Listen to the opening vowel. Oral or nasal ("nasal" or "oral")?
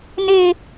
oral